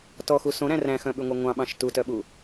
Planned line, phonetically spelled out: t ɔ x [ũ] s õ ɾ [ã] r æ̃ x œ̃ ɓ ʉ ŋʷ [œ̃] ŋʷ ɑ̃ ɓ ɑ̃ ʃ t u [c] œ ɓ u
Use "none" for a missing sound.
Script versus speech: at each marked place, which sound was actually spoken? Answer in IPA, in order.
u, æ̃, œ, t

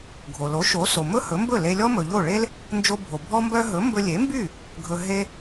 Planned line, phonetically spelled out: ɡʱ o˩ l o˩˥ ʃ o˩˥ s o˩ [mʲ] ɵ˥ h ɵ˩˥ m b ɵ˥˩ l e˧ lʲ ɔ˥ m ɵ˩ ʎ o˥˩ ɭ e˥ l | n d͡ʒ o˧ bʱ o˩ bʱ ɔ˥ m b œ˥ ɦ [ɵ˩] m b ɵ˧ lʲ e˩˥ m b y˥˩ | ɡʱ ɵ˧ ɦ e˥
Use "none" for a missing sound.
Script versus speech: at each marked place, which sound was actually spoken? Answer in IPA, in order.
m, ɵ˩˥

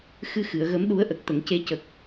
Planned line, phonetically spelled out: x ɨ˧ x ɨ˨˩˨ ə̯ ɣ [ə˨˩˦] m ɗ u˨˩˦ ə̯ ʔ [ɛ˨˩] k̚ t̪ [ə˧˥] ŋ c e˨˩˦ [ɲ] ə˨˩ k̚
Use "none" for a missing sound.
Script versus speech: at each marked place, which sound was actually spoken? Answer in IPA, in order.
ə˨˩˦, ə˨˩, ə˨˩˨, c

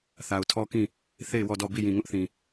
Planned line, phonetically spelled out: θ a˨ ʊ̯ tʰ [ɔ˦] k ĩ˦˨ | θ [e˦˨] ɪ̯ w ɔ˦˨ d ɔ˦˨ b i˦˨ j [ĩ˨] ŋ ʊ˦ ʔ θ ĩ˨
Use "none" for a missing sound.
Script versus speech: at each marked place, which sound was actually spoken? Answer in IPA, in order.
ɔ˦, e˦˨, ĩ˨

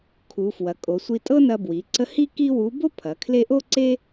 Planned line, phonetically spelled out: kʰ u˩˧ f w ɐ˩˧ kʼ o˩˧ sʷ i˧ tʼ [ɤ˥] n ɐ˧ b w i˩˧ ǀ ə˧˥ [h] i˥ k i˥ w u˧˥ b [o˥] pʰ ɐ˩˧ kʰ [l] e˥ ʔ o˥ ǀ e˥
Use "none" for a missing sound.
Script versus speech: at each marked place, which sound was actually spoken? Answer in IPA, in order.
ɤ˥, h, o˥, l

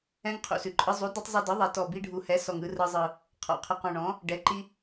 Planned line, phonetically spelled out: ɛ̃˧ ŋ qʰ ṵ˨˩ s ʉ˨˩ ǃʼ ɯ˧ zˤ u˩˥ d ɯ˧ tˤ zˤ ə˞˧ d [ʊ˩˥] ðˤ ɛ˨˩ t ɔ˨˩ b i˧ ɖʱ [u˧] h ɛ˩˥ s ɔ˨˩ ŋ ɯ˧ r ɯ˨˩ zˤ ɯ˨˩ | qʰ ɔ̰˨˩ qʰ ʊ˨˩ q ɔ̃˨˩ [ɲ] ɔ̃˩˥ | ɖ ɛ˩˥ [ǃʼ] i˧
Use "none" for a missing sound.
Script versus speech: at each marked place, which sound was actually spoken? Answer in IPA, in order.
ɯ˩˥, u˨˩, ɳ, ǃ

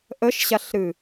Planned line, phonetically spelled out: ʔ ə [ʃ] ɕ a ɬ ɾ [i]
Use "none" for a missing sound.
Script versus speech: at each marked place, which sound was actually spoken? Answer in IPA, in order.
ʃ, ɨ

